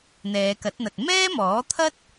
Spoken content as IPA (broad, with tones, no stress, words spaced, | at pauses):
n̪ɛː˨˧kɐ˨˥t̚n̪ɐ˨t̚ mɛː˥mɔː˨˥t̪ʰɐ˥t̚